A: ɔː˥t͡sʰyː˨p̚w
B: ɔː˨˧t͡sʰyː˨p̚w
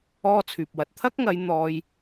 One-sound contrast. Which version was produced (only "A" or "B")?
A